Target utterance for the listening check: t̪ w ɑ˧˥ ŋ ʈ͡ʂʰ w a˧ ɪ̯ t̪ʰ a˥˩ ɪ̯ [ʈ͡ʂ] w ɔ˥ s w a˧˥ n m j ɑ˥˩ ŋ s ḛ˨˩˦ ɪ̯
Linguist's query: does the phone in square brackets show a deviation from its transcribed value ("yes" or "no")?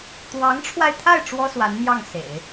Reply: no